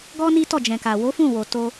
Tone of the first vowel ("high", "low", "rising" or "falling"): high